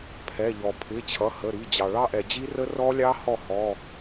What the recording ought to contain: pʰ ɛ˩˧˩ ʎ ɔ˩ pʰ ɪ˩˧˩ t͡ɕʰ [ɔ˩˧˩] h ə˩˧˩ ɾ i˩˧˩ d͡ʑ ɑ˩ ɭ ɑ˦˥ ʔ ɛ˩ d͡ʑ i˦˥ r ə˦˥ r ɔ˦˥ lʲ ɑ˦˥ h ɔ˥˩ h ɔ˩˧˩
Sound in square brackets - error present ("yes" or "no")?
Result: yes